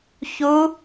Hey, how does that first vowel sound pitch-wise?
rising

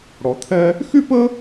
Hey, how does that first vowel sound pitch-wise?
low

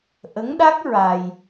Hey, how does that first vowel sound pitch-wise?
rising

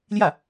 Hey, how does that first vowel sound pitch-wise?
falling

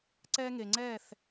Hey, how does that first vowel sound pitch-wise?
high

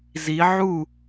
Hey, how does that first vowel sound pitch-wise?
rising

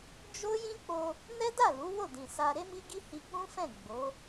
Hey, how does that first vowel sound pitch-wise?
high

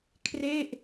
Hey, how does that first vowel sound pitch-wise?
falling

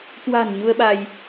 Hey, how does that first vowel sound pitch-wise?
low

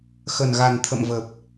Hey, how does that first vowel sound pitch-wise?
low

